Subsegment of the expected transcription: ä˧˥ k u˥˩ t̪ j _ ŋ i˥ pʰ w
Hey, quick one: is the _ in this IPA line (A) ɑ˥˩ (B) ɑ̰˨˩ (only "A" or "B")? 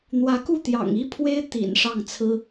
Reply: B